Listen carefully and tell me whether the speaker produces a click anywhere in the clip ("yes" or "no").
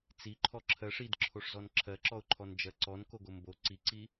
yes